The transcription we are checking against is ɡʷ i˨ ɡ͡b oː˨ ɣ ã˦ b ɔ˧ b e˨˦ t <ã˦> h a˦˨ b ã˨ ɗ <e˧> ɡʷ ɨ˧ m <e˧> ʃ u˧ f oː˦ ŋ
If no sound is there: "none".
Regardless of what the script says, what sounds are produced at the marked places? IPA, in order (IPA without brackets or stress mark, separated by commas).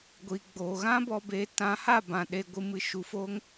ã˨˦, e˧, ɨ˧